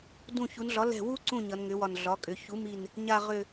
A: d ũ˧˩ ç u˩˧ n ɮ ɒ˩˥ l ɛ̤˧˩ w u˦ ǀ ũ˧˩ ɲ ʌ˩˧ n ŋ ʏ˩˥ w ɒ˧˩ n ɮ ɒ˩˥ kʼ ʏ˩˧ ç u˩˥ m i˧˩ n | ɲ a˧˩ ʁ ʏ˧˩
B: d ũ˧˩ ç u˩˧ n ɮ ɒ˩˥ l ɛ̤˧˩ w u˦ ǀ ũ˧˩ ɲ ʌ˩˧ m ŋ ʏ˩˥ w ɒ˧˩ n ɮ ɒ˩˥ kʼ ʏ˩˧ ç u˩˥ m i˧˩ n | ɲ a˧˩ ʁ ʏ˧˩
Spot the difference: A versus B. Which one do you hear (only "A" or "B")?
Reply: A